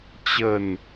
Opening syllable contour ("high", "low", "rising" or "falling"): low